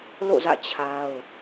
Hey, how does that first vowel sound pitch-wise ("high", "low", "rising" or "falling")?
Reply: falling